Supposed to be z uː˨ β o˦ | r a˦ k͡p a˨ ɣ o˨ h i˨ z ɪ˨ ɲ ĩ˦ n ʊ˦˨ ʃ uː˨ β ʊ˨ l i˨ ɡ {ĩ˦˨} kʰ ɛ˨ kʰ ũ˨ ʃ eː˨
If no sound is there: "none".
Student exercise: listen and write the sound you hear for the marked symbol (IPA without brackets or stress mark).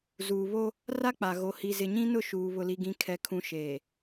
ĩ˨